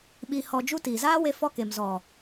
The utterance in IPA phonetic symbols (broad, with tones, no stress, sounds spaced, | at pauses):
ɓ iː˧ h ɔ˧ d͡ʒ u˦ t iː˨ z aː˦ w e˧ f ɔ˧ k e˨ m z ɔ˨